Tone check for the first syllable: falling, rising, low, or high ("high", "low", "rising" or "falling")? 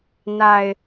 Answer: low